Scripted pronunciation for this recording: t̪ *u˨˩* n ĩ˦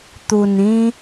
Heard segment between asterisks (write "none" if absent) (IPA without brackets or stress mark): u˨˩